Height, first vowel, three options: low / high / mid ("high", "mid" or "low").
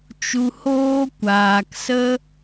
high